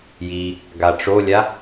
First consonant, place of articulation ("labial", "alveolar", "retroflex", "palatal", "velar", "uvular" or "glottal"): palatal